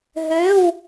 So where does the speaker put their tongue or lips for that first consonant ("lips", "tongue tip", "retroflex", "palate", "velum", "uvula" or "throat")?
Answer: throat